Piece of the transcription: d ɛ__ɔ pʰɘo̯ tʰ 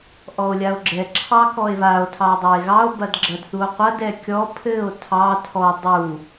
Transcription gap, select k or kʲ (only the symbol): kʲ